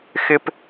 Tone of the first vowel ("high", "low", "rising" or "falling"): high